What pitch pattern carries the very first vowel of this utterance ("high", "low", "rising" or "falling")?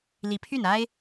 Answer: rising